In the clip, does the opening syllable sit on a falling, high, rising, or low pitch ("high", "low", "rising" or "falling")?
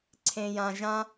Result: low